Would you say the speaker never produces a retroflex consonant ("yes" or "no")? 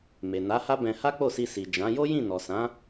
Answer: yes